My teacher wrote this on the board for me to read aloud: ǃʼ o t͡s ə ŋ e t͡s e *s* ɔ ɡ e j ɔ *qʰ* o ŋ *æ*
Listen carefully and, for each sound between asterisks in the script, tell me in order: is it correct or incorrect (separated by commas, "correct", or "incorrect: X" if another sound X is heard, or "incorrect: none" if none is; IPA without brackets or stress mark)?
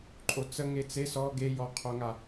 correct, correct, incorrect: a